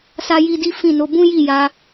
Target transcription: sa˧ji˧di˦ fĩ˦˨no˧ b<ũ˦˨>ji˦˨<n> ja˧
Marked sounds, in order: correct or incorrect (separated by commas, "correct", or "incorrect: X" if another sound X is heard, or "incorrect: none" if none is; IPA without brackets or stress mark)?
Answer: incorrect: ũ˦, incorrect: none